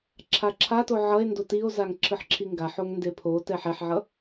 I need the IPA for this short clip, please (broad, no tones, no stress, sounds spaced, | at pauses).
ǁʰ a ǁʰ a t o ʕ ʌ e̯ n d o t i o̯ z a ŋ ǁʰ ɯ ħ ǁʰ i ŋ ɡ a ħ o ŋ n d e pʰ o t ɛ ħ ɛ ħ ʕ ʌ